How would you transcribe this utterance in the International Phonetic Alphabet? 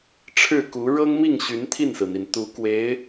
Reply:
ʈ͡ʂʰɻ̩˥˩ku˧˥ ɻɤ˥ŋmi˥˩ŋ ɕy˧˥nt̪ʰi˥˩nsɹ̩˩n̪i˩n t̪u˧˥kwe˧˥ɪ̯

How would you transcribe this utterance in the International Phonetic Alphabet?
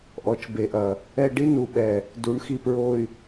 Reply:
ʔɔ˨˦t͡ʃbe˨ʔɐ˨ | ɛ˦ ɖi˦nu˨ɓɛ˨ | du˨˦ɳxi˨ pɹo˨y̯

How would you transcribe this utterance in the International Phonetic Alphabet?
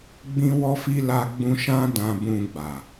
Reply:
ɡ͡bĩ˦wɔ˦fi˦ la˧ɡ͡bũ˧ ʃã˦ dã˧bũ˧ɡ͡ba˨

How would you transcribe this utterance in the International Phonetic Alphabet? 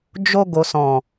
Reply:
d͡ʒo˧ ɡo˨sɔ̃˨

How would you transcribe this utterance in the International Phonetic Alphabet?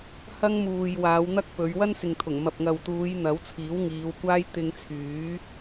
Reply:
hɐ˥ŋmuː˨j waː˨˧wn̪ɐ˥k̚pɵ˨˧ɥ wɐ˥nsɪ˨ŋt̪ʰʊ˨˩ŋ mɐ˨p̚ŋɐ˨wt̪uː˨˧j n̪ɐ˨˥w t͡sʰiː˨˥wŋiː˨˧wkʷaː˥j t̪ɪ˧ŋt͡sʰyː˨˥

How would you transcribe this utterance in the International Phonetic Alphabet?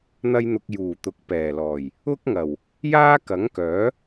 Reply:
n̪ɐ˥jn̪ʊ˧k̚ juː˨˩t̪ʊ˨k̚ pɛː˨˩lɔː˨˩j | ʊ˥k̚ŋɐ˨˩w | jaː˥kɐ˨˥ŋkœː˨˥

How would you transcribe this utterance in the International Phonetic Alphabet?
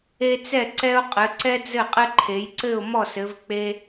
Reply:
e˦t͡sɛ˥˨ ǀɛ˦ʊ̯qʼɘ˩˧ ǀɛ˦d͡zɘ˥˨qʼɘ˦ǃʰe˩˧j ǀɘ˥˨ʊ̯mɔ˥˨sɘ˩˧v k͡pe˦

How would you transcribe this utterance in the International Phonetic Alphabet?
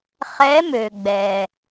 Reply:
χɛ˧˥mø˩ ɡ͡bɛ˩

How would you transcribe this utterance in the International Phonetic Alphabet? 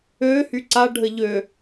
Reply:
ø hyǀa ɖʱəʎø

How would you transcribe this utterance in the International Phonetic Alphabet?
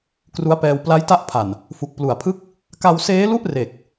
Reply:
kru˦˥a̯pɛː˧w pla˦˥jta˦˥ʔpʰa˨˩n | fu˨˩k̚plu˨˩a̯pʰɯ˥˩k̚ | ka˧wseː˦˥lu˥˩ʔ re˨˩k̚

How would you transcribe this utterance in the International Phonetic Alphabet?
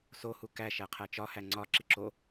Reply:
so hukæ ʃæqʰæt͡ʃɒ hæŋ͡ǀɒ ǁiǁo

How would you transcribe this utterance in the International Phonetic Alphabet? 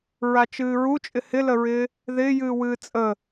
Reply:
ɹat͡ʃɨːɹu t͡ʃʼɪhɪləɹɪː | ðɪːjɨː wɨːt͡sʼə

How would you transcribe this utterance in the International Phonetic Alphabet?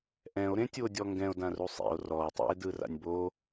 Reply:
ʔɛ̃o̯ɾẽtʲuo̯dʲɔ ŋɡɛ̃o̯dãru sˤḭo̯ rɔo̯ tˤḭe̯dɯra̰nʲ bo

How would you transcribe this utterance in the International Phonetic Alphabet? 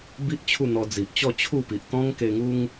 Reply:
bi˦ʔ t͡ɕʰu˥˧n̪ɔ˧ d͡zi˨ʔt͡ɕɔ˥˧ t͡ɕʰu˥˧pi˨ʔ t̪ɔ̃˦ŋke˧ŋu˦ŋ

